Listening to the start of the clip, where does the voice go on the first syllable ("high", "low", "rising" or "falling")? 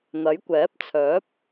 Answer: rising